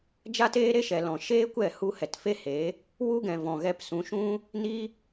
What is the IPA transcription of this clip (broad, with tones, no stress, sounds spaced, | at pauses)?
d͡ʒ a˦ t eː˦ ɾ e˦ ʃ ɛ˨ l ɔ̃˨ ʃ eː˦ kʷ ɛ˦˨ h u˦ h ɛ˨ t f e˦ h eː˨˦ | w u˦ ɡ ɛ̃˨ v ɔ̃˨ ɣ ɛ˧ p s ũ˨˦ ʃ ũ˦ | n i˦